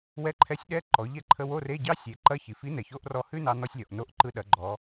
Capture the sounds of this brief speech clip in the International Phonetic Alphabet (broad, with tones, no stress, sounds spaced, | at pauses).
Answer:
w ɛ˧˥ ǃʰ ɛ˧˥ sʲ ɗ ɛ˧˥˧ ǃ ɔ˩˧ ʎ ɛ˥ ǃʰ ə˧˥˧ w o˧˥˧ r e˧˥˧ ɟ ɑ˥ sʲ e˩˧ ǃ ɐ˧˥˧ ç i˩ f i˧˥ n ɛ˩ ç o˧˥ ʔ r ɔ˧ h ʉ˥ n ɑ˧ n ɔ˧ sʲ lʲ ɔ˩ ʔ n o˧ ʔ ǃ ɯ˧ ɗ ɐ˩˧ ɡ͡ǃ ɔ˩˧